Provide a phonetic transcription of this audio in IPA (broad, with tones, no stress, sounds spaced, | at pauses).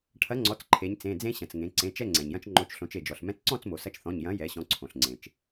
ʈʰ ɐ˨˥ ŋ͡ǀ ɔ˩˧˩ t͡s ǃʰ e˩˧ ɲ t͡s ẽ˩˧˩ d͡z ẽ˧ ɕ ɐ̃˩ t͡s ŋ ẽ˩˧ ǀ ẽ˩˧˩ t͡ʃ ɛ˥˨ ŋ͡ǀ ɛ̃˩ ɲ j ɐ̃˧ t͡ʃ ŋ͡ǃ o˩˧˩ t͡ʃ ɬ õ˩˧ t͡ʃ e˩ d͡ʒ ɔ˩ ɬ m ɛ̃˧ t͡s ǀ ɔ̃˥˨ t͡s m o˩ s ɐ˧ t͡ʃ θ ɔ̃˩˧˩ ɲ j ɐ̃˨˥ j ɛ˩˧ ɕ ɔ̃˩˧˩ ǀʰ õ˩ ɬ ŋ͡ǀ ẽ˩ t͡ʃ